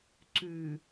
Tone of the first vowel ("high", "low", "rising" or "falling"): low